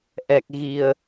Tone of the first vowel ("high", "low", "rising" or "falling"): low